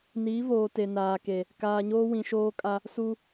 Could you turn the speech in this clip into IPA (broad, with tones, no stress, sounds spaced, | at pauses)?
n iː˨˦ v oː˨ t e˨ n aː˨ k e˨ | k aː˨ ɲ oː˦ w ĩ˨ ʃ oː˦ kʼ a˦ | s u˦